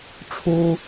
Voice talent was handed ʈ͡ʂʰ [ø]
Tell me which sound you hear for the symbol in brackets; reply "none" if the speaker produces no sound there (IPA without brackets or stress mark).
u